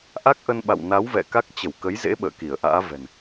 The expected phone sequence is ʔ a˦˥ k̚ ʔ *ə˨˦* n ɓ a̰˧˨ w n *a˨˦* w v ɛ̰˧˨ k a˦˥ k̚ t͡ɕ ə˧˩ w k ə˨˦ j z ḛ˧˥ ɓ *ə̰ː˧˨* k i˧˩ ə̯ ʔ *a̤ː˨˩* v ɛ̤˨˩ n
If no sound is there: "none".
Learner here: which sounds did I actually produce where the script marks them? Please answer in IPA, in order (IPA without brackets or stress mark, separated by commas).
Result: ə˧, a˨˦, ə̰ː˧˨, a̰ː˧˥